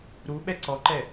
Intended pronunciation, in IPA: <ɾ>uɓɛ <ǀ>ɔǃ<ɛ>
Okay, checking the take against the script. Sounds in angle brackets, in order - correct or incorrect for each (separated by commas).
correct, correct, correct